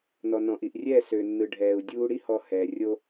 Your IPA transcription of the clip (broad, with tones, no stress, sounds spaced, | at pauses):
n ɔ˨ n ɔ̃˨ ʔ i˨ ʔ rʲ ɛː˦˨ s ø˨ nː ɯ˨ ɖʱ ɛː˨ u̯ dʲ uː˧ ɽ i˦ h ɔ˧ h ɛː˨ rʲ o˧